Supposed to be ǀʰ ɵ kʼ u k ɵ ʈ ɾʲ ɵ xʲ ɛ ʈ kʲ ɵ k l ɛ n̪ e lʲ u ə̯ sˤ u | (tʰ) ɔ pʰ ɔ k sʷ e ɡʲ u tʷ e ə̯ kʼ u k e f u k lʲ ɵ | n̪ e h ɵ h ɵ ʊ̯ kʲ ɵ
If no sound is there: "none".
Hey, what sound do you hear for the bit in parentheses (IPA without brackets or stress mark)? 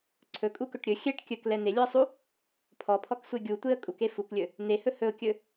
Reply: pʰ